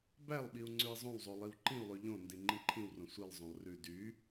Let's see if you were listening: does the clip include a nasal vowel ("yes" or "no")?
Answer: yes